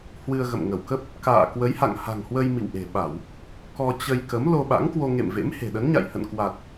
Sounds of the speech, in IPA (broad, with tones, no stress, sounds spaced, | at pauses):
h w ɨ˧ ə̯ ɣ ə̰˧˨ m ŋ ə˧˩ w k ə˦˥ p̚ | k a̰ː˧˨ k w ə˨˦ j h a̰˧˨ ŋ h a̤˨˩ ŋ h w ə˧ j m ḭ˧˨ w ʔ e̤˨˩ ɓ a˧˩˨ w | k ɔ˧ t͡ɕ ə˧ j k ə˨˦ m l o˧ ɓ a̰˧˥ ŋ k w o˧ ŋ ḛ˧˨ m v ḛ˧˥ m h e̤˨˩ ɗ ə˨˦ n ɲ a̰˧˨ j h ə̰˧˨ n k w a˨˩ t̚